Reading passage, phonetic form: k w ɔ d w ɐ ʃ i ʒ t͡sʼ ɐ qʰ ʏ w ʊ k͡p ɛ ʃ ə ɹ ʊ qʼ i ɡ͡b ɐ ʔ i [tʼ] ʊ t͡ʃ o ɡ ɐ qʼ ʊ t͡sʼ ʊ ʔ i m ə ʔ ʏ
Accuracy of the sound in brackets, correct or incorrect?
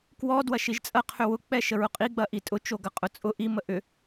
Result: correct